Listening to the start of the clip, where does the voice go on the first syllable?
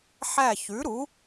falling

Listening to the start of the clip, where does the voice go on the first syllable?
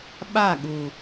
falling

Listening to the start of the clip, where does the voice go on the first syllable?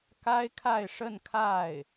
high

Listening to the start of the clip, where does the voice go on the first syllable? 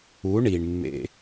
rising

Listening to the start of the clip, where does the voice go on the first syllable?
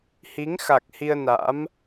rising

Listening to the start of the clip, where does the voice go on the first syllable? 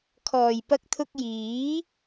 low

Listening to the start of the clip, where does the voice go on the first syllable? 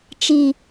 falling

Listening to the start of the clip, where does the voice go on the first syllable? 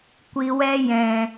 low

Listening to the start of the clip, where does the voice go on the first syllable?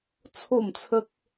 falling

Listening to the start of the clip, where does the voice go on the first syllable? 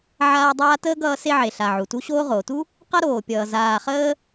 high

